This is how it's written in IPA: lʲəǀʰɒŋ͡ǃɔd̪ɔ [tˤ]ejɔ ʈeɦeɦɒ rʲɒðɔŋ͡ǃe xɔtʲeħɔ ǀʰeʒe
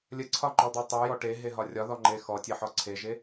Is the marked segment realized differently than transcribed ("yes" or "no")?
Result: no